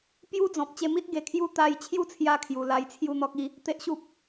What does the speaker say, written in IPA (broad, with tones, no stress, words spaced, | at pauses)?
pju˦ d͡zɔ̃˨p̚ t͡ɕe˧mi˦t̚ ɡe˧kʰju˦ t̪a˧jt͡ɕʰju˥˧t͡sʰja˧ kʰju˨˩la˧j t͡sʰju˥˧n̪ɔ˦k̚ i˧ | t̪e˦ʔɕu˦p̚